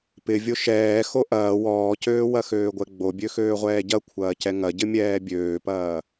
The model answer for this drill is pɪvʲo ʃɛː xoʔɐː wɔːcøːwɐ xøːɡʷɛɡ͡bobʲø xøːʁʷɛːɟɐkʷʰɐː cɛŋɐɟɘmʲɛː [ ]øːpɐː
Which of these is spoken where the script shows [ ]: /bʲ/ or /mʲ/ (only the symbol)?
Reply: bʲ